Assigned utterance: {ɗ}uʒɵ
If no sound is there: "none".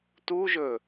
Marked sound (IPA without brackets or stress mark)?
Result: t